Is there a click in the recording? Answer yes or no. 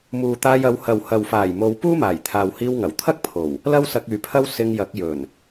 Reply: no